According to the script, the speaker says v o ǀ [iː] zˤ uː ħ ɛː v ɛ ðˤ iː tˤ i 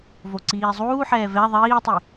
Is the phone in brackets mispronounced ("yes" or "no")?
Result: no